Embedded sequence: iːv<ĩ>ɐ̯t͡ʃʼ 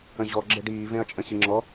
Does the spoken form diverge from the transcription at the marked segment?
yes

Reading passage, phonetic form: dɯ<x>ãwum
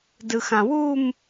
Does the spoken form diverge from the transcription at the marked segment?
no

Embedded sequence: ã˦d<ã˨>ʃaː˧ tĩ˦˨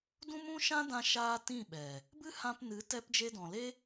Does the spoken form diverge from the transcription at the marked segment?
yes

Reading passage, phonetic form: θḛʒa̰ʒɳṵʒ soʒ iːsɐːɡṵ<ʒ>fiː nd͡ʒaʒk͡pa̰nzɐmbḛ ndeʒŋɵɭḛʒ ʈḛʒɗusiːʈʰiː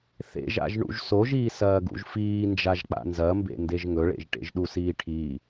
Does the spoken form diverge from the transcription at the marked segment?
no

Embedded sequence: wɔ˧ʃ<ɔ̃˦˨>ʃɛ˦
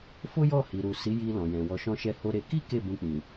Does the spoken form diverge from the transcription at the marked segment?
yes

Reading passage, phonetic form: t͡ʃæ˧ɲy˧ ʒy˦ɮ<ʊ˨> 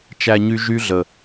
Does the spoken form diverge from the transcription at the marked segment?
yes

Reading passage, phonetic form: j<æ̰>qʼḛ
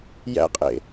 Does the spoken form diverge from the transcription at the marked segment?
no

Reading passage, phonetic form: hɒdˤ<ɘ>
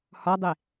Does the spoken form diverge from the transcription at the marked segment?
yes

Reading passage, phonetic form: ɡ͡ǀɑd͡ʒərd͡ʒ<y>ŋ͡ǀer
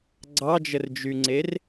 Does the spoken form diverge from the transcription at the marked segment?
no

